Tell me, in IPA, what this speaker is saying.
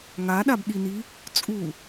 ŋ a ɗ a b ɗ i n i | t͡sʼ u

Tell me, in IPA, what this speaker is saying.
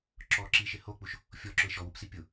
ǁ ɔ ǁ i ʃ ɪ h o k͡p u ʃ | fʲ ɔ ǁ ʊ ɪ̯ ʃ ɔ w u p s i pʲ ʊ

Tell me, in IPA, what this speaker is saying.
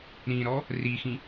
ɾ ĩ ɾ ɔ | r i x ĩ

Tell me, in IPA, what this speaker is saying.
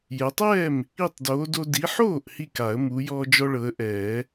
j ɛ˨˦ tˤ ɛː˥˩ m | i˥˩ tˤ d oː˨˦ d o˦ d i˨˦ ħ oː˥˩ ʔ h i˧˩ k a˨˩˦ ə̯ m u˨˦ j ɔː˦ d͡ʒ ɔ˦ ɭ ɤ˨˦ ə̯ ʔ ɛː˨˩˦

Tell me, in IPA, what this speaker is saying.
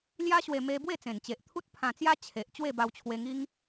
l j a˦ ɕ w e˧ m e˧ b w e˥˧ t͡s ẽ˨˩ n t͡ɕ e˨ ʔ t̪ʰ u˦ t̚ pʰ ã˧ t͡s j a˦ t͡ɕʰ e˨ ʔ t͡ɕ w e˥˧ b a˧ w t͡ɕʰ w e˧ ŋ i˦ ŋ

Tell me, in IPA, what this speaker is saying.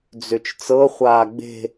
d͡z ø t͡ʃ t͡s ɤ χʷ aː ɡ͡b e̤

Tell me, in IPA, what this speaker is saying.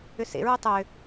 ʏ s ḛ ɹ ʏ tˤ ʏ

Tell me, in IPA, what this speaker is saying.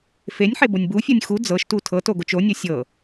f e nʲ ħ e b o nʲ b u fʲ ɤ nʲ x u d͡z ɤ ʃ t u tʰ ɤ t o ɡ o t͡ʃ o nʲ ɤ sʲ ɤ

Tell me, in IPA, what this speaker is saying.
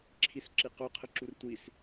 ǁʰ i s ǁ i q ʊ qʰ ə ǁ u r tʷ i s

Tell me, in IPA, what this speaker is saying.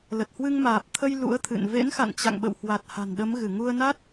l ə˨˩ t̚ h w ɨ˧ ŋ m aː˨˩ p̚ t̪ʰ ə˧ j l ṵ˧˥ ə̯ t̪ʰ ɨ̰˧˨ n v ḛ˧˥ n x a̰˧˨ n t͡ɕ a̰˧˨ ŋ ɓ ə̰˧˨ w h w a˨˩ t̚ h a̤˨˩ n ɗ ə˨˦ m ɣ ɨ˧˩ ŋ u˧ ə̯ n a˦˥ t̚

